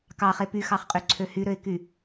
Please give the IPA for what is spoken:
k ɑ χ e p y x ɑ χ qʼ y ǀʰ ø h y ɾ ø ɪ̯ k y

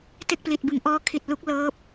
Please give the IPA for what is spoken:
t e˥˩ k̚ p l i˨˩ t̚ b ɯ˩˦ ŋ ʔ ɔː˦˥ kʰ i˨˩ t̚ l u˦˥ k̚ l ɤː˦˥ p̚

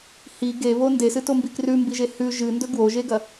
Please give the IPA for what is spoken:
h i ɡ e β o n d e s ɨ t o m b i k r ʉ m b i ʒ e h ʉ ʒ ɨ n d ɵ ɡ w o ʒ e ɡ ɐ

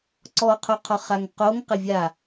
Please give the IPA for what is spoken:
ǀ ɔ qʰ o qʰ ɔ χ a ŋ q o ŋ q ɪ vʲ a

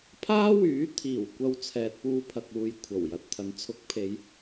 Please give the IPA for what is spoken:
pʰ aː˥ w yː˨˥ t̪ʰ iː˨˩ w kʷ ɐ˧ w t͡sʰ ɛː˨ t̚ p uː˧ pʰ ɐ˨ k̚ uː˨ j kʷʰ ɐ˨˩ w j ɐ˨˥ t̚ t̪ʰ ɐ˨˥ n t͡sʰ ʊ˨˥ k̚ pʰ e˨˧ j

